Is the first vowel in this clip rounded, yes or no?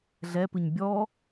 no